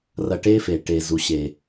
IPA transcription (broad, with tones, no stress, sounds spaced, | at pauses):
r ɐ˧ ʈ e˦ f e˨ ʈ e˨ z u˨ ɕ e˨